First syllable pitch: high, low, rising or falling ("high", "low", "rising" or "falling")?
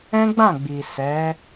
high